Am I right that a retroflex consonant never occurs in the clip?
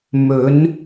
yes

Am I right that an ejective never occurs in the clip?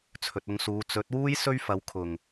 yes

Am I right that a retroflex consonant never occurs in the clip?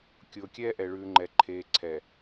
no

